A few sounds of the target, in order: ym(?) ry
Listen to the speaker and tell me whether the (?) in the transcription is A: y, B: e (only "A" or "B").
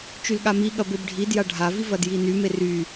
B